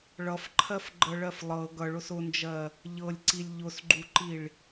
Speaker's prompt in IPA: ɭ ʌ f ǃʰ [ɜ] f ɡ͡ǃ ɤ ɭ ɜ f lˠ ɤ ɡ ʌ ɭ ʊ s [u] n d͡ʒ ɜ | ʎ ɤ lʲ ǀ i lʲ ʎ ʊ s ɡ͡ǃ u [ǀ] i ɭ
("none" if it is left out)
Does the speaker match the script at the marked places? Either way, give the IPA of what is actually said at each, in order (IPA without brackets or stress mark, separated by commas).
ɜ, ʊ, ǃ